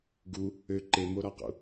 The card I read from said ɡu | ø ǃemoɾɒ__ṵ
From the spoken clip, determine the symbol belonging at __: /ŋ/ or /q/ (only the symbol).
q